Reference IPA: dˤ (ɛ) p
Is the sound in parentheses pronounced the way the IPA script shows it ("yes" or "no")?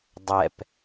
yes